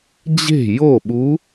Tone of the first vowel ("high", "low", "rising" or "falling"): falling